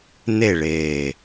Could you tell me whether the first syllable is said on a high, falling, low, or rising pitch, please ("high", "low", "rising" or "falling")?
falling